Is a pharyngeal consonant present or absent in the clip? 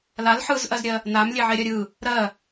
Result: present